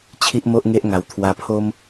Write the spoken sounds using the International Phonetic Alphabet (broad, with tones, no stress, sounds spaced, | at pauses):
t͡ɕʰ i˦ ʔ m o˦ ʔ ŋ e˦ ʔ ŋ a˧ w t̪ʰ w a˧ pʰ o˦ m